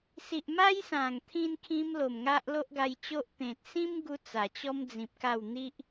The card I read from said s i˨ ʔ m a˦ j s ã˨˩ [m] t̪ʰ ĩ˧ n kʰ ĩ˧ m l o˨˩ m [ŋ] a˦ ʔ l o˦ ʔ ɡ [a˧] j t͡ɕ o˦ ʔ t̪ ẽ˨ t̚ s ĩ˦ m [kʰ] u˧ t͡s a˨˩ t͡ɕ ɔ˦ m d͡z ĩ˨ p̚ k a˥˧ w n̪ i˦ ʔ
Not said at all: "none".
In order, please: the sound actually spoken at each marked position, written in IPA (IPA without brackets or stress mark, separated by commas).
ŋ, ŋ, a˧, ɡ